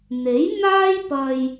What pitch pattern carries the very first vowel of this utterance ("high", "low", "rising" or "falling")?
rising